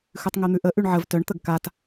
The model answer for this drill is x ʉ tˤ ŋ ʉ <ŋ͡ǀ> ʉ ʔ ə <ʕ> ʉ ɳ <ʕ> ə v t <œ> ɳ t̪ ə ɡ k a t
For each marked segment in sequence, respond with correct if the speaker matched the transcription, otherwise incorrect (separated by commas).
incorrect, incorrect, correct, correct